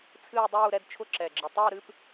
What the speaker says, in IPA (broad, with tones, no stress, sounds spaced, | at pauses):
t͡sʰ ɨː˥˧ dˤ uː˥˧ ɾ ɛ˥˧ d t͡ʃʰ ʊ˥˧ ǁ ɛ˩ ɡ͡ǁ ɨ˩ tˤ əː˥˧ ɾ ɨ˥˧ p